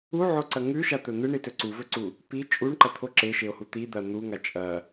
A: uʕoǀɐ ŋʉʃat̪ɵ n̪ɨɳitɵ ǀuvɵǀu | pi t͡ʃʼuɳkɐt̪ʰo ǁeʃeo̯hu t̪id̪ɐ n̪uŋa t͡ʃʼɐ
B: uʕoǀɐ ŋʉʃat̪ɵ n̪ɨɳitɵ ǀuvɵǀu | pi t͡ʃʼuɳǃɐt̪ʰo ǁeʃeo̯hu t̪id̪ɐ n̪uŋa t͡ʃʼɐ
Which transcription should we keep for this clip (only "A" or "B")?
B